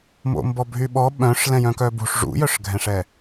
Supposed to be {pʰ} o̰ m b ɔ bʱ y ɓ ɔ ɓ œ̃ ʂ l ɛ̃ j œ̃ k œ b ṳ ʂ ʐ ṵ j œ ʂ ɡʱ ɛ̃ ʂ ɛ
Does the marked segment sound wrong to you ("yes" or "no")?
yes